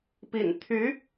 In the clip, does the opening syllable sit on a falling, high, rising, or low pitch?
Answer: low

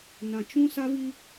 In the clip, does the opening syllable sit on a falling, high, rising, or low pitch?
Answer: low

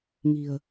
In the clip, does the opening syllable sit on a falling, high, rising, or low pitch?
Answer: low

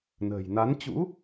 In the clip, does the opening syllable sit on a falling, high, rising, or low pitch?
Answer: low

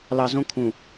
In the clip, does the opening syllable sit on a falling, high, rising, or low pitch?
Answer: low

